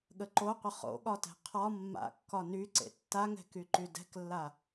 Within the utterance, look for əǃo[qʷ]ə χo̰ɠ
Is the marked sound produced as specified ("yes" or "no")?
yes